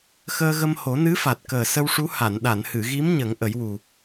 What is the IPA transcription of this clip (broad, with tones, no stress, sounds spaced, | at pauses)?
x əː˧ ɣ ə˧ m h o˨˩˦ n ɨ˧˥ f a˨˩ t̚ k əː˨˩ s ə˧ w ʂ u˧˥ h a˨˩˨ n ɗ a˨˩˨ n h ɨ˨˩˨ ɣ i˧˥ m ɲ ə˨˩˦ ŋ ʔ ə˨˩˦ j w u˨˩